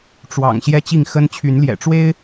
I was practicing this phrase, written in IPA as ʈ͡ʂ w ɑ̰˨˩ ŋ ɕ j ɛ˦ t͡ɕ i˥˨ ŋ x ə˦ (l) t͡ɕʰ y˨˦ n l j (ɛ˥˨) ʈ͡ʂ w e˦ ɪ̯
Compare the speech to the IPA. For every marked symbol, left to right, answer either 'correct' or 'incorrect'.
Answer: incorrect, incorrect

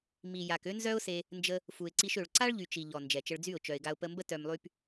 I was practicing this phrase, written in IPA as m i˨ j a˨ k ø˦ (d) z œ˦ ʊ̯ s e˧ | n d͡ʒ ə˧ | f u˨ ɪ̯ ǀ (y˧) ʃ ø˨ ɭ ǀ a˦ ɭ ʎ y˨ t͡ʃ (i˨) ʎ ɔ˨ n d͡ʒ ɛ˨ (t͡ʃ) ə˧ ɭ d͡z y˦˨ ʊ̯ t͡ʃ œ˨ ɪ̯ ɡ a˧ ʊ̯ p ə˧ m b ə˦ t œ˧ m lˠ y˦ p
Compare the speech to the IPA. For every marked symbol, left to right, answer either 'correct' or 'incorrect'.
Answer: incorrect, incorrect, correct, correct

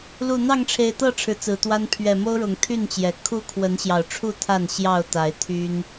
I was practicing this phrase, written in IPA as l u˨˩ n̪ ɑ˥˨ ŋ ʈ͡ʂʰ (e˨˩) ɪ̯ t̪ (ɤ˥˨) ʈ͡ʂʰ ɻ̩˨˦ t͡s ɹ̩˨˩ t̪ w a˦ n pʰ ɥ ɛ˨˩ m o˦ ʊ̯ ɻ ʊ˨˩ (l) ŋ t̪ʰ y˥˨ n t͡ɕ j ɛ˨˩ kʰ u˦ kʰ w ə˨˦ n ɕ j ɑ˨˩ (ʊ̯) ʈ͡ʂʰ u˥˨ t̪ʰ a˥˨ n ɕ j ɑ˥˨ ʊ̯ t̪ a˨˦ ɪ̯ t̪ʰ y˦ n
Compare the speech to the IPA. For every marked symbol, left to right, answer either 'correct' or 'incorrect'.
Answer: correct, correct, incorrect, correct

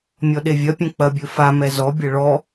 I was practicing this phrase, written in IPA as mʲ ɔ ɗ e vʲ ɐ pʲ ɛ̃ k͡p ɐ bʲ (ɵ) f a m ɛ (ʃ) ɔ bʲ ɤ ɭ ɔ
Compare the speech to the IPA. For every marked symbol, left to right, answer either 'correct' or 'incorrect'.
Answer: correct, incorrect

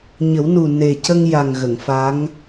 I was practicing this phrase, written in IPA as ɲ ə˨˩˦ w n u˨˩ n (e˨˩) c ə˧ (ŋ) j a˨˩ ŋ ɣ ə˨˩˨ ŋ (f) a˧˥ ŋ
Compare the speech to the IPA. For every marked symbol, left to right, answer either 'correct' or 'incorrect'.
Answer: correct, correct, correct

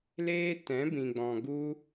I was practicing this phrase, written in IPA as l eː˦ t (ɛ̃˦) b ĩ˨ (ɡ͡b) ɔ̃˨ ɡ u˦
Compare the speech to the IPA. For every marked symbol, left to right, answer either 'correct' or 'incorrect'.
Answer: incorrect, correct

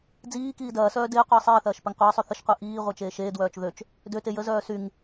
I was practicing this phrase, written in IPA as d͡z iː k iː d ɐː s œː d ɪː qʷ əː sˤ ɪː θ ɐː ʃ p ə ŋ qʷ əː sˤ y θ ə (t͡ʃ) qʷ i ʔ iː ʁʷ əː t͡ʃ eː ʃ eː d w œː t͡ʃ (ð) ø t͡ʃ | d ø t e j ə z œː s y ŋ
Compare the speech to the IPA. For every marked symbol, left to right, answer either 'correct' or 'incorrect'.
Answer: incorrect, correct

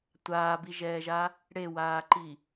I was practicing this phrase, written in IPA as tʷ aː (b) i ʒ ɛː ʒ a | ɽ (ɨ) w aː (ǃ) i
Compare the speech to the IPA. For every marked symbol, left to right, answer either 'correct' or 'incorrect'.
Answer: correct, incorrect, correct

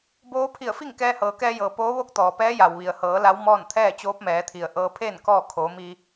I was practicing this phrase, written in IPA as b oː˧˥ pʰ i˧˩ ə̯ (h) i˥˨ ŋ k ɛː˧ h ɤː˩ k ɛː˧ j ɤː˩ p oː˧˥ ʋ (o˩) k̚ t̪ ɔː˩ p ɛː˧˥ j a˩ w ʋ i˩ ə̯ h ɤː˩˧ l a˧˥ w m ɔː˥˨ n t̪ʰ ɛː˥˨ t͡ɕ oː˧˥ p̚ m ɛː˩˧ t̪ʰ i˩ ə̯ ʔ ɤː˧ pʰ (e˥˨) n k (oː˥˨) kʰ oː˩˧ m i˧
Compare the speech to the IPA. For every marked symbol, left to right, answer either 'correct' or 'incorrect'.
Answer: incorrect, incorrect, incorrect, incorrect

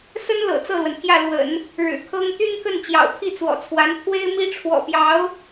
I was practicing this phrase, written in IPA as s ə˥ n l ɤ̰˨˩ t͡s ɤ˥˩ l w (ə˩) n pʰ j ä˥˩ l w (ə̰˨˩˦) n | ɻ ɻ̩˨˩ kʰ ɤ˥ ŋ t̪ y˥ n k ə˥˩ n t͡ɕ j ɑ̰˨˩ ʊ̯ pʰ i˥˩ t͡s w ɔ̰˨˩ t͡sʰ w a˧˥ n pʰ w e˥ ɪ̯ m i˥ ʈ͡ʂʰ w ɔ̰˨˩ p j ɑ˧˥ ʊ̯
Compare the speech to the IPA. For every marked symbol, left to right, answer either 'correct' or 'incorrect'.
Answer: correct, correct

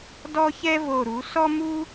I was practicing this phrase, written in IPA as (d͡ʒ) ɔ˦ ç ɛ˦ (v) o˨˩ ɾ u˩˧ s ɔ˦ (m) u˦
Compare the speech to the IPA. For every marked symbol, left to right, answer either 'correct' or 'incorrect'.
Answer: incorrect, correct, correct

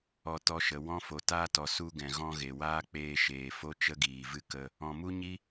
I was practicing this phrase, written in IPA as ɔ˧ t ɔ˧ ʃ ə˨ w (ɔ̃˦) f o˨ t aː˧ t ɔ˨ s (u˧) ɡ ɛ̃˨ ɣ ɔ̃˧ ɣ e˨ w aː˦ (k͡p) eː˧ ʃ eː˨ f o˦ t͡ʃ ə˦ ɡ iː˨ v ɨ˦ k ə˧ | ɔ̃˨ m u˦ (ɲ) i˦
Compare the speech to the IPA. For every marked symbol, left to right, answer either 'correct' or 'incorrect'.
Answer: correct, correct, correct, correct

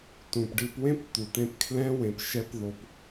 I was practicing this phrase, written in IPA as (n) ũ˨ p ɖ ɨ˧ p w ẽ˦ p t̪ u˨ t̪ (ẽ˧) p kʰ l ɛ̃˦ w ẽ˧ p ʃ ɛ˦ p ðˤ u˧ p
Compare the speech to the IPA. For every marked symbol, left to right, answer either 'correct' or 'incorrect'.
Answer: incorrect, correct

